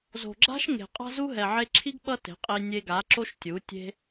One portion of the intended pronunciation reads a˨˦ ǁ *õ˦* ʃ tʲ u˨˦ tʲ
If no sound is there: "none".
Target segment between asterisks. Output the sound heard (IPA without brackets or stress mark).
o˦